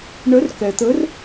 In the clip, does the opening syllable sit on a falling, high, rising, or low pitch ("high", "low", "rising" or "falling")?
rising